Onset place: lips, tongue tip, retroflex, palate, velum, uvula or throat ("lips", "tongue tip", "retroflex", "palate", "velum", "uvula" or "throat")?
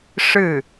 retroflex